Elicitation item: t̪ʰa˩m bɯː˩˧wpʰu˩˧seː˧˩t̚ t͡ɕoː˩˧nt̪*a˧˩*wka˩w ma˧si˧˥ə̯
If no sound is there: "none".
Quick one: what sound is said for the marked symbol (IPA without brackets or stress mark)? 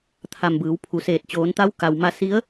a˧˥